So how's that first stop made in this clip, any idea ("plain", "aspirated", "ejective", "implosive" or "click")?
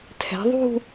aspirated